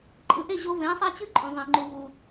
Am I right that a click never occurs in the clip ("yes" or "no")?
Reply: no